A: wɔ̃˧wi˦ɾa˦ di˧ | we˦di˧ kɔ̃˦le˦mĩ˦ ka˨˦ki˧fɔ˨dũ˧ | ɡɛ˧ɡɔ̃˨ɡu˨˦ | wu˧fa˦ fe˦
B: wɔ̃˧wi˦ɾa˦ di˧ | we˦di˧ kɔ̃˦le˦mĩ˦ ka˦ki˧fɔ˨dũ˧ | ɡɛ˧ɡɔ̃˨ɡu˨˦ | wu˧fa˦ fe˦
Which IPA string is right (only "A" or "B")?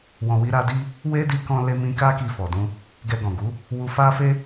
B